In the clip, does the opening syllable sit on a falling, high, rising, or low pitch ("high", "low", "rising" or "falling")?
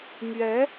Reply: rising